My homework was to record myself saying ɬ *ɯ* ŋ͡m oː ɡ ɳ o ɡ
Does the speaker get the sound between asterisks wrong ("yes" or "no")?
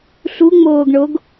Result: yes